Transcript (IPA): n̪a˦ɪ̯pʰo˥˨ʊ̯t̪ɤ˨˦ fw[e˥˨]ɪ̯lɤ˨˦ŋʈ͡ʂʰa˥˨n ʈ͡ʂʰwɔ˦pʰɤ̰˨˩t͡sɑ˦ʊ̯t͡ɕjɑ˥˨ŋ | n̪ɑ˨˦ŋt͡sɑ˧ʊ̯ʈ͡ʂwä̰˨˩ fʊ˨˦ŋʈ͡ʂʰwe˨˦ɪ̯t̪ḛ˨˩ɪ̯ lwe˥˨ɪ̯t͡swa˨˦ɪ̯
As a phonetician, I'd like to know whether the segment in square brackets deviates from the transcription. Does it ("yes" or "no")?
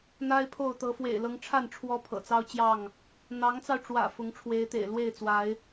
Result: yes